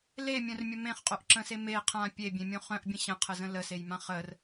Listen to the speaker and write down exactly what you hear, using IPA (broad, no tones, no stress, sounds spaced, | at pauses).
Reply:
l e mʲ œ̃ r mʲ ə m ẽ χ qʼ o ʔ ǁ ə̃ s e m e qʰ ã pʲ e bʲ ẽ mʲ õ χ œ̃ ʔ bʲ ə̃ ɕ ə̃ qʰ ə z ə̃ l ə s e j m ã χ ə r